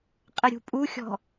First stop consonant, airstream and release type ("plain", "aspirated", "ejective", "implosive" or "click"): ejective